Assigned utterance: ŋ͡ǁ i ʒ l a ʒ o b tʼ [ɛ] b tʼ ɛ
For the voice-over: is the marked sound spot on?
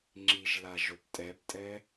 yes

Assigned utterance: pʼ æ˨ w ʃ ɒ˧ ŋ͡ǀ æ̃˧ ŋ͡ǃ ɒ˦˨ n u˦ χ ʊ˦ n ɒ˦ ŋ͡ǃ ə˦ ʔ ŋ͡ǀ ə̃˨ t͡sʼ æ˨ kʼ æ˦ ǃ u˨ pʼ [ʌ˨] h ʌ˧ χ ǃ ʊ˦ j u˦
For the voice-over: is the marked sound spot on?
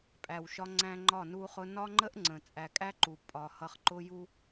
no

